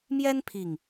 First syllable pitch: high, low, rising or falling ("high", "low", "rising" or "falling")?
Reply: high